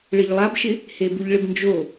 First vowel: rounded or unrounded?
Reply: unrounded